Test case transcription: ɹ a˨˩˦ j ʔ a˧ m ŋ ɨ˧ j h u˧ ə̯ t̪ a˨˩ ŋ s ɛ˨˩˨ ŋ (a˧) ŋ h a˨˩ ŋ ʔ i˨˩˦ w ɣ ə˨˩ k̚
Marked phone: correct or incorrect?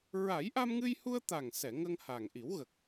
incorrect